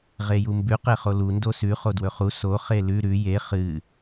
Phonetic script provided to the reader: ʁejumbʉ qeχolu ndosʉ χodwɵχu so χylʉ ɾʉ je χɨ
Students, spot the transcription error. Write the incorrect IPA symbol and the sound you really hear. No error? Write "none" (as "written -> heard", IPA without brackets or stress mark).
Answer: y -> e